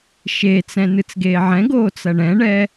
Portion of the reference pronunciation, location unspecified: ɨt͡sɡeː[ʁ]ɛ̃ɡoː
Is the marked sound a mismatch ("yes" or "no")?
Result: yes